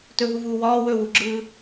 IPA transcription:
t ɵ ɦ u v uː w ɒː w ɵ w u ɡ͡ǁ ɯː

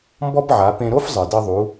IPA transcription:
m b ɔ˥ b ʕ a˩˧ p ẽ˧ ɾ o˥ f zˤ ɨ˩ d ɘ˧ ðˤ u˩˧

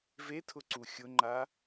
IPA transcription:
v e tʰ ʊ ǀ u xʲ ʊ ŋ͡ǃ a

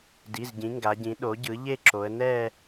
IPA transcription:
d i˩˧˩ z ɟ ĩ˩˧ ŋ ɡ a˩˧ ɟ ĩ˩˥ ɗ o˩˥ ɟ ɯ˩˥ ʎ e˥˧ ǁ o˩˧ ə̯ n ɛ˥˧

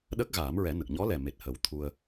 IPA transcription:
ɗ ə˦˥ k̚ ɣ aː˨˩˦ m ɹ ɛ˨˩˦ n ə˨˩ k̚ ɲ ɔ˧˥ l ɛ˨˩ m e˨˩ t̚ h ə˨˩ w t̪ʰ u˧ ə̯

